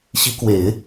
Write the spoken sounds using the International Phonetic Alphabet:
ɕ i˧˥ k w e˨˩˦ ɪ̯

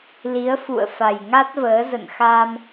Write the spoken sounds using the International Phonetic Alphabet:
l i˨˦ ə̯ f ṵ˧˨ ə̯ f a˨˩ j ŋ a˦˥ t̚ v əː˨˦ z ə̰˧˨ n x a˧ m

